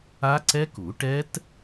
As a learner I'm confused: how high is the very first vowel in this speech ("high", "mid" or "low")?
low